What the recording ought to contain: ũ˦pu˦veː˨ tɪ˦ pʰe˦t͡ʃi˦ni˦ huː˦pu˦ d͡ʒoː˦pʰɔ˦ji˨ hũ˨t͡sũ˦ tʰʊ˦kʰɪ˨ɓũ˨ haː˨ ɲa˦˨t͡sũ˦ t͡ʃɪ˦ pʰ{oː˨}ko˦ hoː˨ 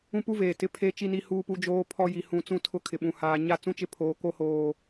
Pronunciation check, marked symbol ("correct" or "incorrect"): correct